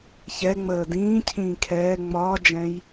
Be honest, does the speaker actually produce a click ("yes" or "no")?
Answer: no